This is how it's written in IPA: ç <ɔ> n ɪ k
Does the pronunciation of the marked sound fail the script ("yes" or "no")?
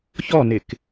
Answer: no